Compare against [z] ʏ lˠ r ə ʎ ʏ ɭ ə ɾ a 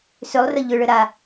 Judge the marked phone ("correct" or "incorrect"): incorrect